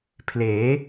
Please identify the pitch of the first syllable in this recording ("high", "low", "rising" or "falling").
rising